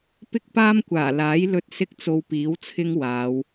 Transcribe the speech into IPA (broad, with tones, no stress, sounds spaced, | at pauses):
p ɪ˥ k̚ p aː˥ m kʷ aː˨˩ l aː˨˥ j l ɵ˧ t̚ s ɪ˥ k̚ t͡s o˧ w p iː˨˥ w t͡sʰ ɪ˥ ŋ w aː˨˧ w